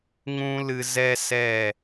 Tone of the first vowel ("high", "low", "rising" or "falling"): high